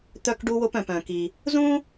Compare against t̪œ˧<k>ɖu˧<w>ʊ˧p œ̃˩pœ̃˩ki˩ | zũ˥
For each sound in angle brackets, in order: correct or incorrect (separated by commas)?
correct, correct